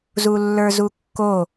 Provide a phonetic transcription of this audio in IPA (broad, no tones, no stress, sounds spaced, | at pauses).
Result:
z u lː ə˞ z u kː o